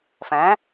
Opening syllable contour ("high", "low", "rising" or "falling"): rising